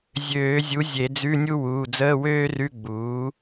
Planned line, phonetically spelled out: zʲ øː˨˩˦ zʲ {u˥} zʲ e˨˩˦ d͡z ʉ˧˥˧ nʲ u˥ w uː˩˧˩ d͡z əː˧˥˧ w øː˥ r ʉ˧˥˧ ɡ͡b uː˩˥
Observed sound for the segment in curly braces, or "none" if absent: u˩˥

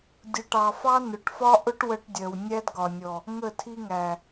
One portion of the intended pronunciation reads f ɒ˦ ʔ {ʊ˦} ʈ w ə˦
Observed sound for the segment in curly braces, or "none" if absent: ʊ˦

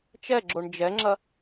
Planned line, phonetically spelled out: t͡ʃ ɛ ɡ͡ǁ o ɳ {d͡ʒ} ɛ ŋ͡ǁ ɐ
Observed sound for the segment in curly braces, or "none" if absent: d͡ʒ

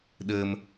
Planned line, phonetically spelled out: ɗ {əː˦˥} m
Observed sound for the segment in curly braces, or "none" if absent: əː˧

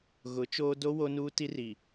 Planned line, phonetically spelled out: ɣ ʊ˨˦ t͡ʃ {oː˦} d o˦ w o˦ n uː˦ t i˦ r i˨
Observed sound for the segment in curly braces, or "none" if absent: oː˦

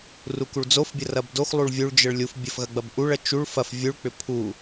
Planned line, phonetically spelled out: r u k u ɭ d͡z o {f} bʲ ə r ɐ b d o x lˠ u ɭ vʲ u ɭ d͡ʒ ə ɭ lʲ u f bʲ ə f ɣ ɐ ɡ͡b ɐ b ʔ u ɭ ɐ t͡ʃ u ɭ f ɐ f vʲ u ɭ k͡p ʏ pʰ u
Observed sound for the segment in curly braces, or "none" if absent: f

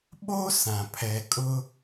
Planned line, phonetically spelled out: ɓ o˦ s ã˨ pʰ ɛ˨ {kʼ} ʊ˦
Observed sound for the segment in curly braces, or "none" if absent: kʼ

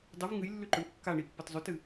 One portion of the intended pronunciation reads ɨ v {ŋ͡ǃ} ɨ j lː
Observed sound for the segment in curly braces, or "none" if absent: ŋ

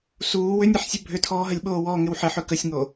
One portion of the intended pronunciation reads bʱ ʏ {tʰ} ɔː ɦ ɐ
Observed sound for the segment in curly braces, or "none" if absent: tʰ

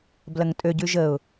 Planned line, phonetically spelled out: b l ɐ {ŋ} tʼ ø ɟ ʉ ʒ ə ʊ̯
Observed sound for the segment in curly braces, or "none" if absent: ŋ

